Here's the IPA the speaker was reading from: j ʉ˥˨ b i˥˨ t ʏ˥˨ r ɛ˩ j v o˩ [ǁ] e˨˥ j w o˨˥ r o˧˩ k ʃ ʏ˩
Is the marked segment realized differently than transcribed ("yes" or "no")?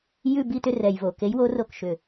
yes